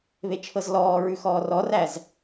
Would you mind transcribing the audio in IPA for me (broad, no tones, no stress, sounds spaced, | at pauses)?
β e t͡ʃʰ ɤ z l ɔː ɹ ʉ x ɔː r ɔ r æ z